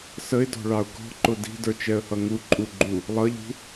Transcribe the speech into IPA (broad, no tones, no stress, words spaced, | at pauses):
səɪ̯dɔ̤ɭɑʊ̯ ɡɔ̤ǃʊ di̤də˞t͡ʃɛə̯hʌ ŋuǃʼuɡ͡ǃu | lˠʌʎṳ